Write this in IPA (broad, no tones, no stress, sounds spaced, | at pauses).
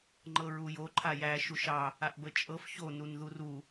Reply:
ŋ͡ǃ ɤ ɹ u j o ǃʰ a j æ ʃ u ʃ ɑ | a ʔ b ə t͡ʃʼ ɤ f ç o n u n ð u r u